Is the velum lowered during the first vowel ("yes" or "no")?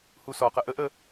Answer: no